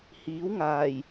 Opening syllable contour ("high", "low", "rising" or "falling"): rising